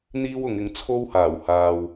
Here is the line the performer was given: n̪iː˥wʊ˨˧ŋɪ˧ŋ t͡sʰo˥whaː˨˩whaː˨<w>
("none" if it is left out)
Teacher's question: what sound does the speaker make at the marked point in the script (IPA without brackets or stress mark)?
w